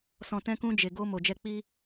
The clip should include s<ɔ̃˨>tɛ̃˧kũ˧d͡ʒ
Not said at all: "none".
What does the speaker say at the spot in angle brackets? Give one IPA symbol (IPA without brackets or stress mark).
ɔ̃˨